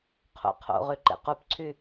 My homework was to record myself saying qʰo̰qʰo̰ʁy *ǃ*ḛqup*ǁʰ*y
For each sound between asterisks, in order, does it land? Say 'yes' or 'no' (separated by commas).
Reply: yes, no